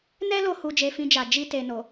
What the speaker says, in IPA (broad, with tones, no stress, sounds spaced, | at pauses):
n ɛ˦ l o˧ h u˧ d͡ʒ e˧ f ĩ˧ d͡ʒ a˨ d͡ʒ i˧ t e˨ n o˨